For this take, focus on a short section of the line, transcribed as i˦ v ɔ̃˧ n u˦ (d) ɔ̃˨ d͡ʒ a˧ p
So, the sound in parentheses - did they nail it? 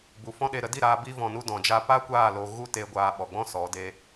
yes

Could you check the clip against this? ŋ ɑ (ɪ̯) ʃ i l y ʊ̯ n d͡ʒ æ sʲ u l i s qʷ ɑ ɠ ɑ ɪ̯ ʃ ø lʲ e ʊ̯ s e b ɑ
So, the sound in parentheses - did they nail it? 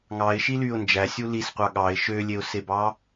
yes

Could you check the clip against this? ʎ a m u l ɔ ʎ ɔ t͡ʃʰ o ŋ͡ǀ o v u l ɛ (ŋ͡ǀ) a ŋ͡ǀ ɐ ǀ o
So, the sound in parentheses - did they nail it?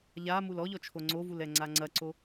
yes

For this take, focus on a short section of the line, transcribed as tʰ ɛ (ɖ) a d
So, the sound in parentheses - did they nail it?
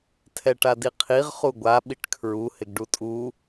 no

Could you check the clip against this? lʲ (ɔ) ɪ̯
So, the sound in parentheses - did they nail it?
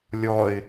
yes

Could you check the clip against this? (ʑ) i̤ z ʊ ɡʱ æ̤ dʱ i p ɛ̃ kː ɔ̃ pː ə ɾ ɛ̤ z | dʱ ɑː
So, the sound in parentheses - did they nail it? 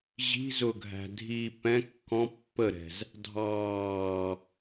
yes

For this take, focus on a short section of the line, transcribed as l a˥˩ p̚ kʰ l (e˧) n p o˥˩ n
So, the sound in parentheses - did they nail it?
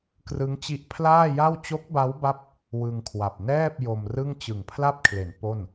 no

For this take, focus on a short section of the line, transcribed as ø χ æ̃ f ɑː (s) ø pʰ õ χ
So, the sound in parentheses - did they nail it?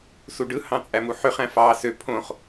yes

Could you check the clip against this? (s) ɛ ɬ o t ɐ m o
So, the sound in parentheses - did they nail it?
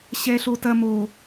no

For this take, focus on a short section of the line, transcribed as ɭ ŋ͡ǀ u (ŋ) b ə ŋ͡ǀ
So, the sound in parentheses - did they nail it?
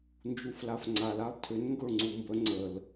no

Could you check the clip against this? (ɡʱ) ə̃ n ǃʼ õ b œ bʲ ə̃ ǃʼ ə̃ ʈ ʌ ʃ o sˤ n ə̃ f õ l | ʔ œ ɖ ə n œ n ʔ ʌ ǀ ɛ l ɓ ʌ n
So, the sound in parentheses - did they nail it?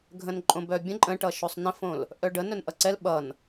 yes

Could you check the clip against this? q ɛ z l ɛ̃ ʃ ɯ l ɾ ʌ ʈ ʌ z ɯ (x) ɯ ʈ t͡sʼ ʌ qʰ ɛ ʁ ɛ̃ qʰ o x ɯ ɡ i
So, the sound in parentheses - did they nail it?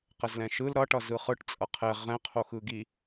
no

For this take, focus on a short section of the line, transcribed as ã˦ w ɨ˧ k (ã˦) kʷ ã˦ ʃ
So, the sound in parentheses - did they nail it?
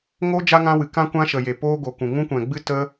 yes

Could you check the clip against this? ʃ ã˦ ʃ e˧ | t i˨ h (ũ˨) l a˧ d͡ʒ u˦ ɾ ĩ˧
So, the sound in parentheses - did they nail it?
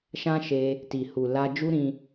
no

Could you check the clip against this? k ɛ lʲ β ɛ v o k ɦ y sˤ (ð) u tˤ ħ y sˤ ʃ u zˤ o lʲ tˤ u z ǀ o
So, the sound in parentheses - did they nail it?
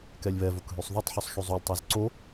yes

